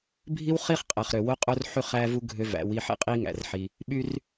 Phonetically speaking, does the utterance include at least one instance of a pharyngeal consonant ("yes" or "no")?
yes